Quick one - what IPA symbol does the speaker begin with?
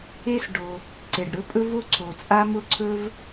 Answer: e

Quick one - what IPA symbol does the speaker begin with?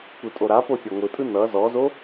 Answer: kʷ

